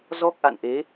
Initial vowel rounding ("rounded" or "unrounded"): rounded